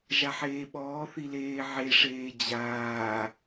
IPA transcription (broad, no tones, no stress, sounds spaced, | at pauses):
ʒ a ħ eː ɓ ɔː θ i l eː ʕ e ʂ eː d͡ʑ aː